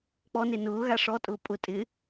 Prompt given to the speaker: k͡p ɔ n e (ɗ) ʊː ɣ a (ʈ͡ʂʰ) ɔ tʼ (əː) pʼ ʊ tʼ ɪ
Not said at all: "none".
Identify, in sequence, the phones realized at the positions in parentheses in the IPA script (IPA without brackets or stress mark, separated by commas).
n, ʂ, ʊː